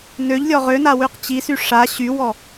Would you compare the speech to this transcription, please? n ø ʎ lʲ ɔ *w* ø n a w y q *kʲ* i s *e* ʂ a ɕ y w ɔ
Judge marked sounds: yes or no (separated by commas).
no, no, no